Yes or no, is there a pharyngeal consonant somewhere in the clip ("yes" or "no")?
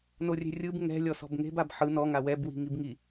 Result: yes